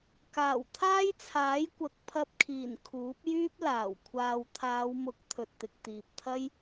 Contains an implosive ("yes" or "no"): no